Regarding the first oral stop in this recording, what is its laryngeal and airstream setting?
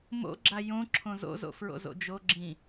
click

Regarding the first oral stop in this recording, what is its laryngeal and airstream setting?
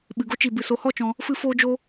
implosive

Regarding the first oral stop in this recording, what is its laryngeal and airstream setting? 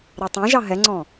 plain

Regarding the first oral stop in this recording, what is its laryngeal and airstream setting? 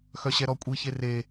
ejective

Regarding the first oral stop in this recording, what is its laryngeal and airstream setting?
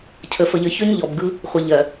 aspirated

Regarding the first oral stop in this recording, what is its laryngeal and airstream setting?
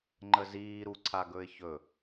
click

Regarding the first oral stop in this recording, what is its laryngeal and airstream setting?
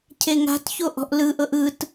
aspirated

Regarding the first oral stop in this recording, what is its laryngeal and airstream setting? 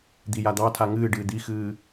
plain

